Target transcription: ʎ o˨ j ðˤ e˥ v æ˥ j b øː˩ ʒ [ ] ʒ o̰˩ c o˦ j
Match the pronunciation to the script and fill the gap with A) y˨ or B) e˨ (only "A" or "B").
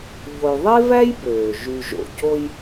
A